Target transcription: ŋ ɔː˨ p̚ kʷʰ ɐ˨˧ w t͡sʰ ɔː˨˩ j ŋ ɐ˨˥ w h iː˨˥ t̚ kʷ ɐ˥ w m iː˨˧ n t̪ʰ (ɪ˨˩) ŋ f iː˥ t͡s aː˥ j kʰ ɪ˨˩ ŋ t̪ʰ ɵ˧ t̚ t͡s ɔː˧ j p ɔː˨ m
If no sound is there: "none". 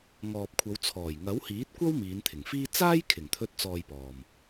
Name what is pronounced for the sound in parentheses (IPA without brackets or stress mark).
ɪ˨˩